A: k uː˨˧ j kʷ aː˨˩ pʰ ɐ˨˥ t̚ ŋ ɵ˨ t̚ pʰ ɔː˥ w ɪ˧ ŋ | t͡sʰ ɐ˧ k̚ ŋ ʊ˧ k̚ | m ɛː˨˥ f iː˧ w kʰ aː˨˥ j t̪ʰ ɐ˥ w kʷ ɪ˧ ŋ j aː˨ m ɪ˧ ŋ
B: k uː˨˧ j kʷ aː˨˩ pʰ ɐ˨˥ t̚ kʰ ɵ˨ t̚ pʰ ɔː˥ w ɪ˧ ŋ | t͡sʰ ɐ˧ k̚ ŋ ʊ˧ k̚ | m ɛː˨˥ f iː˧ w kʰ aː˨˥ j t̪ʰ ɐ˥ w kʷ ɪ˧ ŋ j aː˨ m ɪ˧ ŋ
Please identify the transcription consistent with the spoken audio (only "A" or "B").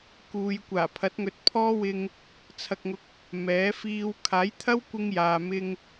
A